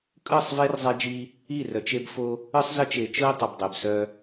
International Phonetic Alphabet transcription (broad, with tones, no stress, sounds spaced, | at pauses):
kʼ ɯ˦˨ sˤ v e˦ r zˤ e˦ d͡ʒ i˦ | i˦˨ r œ˨ t͡ʃ e˦ b f o˦ | ɯ˦ sˤ z ə˦ t͡ʃ e˨ t͡ʃ ɯ˦ ɪ̯ tˤ ə˨ b dˤ e˨ b s œ˦